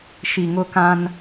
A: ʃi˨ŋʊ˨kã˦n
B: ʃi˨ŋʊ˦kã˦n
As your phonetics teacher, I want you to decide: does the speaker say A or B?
B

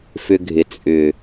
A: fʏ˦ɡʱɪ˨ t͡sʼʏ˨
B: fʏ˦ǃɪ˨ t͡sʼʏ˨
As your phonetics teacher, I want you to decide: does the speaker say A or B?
A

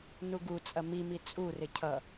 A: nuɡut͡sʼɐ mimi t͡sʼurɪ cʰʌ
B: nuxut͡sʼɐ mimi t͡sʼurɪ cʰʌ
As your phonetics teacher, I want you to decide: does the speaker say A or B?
A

